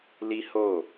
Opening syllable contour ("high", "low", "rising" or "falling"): high